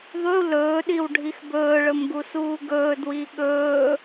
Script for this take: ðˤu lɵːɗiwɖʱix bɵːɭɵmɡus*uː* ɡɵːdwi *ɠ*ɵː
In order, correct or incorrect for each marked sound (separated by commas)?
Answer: correct, correct